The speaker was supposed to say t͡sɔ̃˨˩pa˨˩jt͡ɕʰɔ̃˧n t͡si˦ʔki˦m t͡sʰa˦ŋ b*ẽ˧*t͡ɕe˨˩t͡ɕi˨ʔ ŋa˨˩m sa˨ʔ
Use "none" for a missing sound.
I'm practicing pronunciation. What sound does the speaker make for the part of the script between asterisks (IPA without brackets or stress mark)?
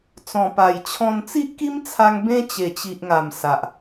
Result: ẽ˦